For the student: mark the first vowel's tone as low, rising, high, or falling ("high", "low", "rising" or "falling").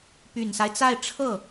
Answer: low